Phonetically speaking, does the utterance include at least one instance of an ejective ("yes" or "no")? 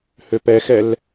no